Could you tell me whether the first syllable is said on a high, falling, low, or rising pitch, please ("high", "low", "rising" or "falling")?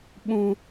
high